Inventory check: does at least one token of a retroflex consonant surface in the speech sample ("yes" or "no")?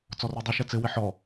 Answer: no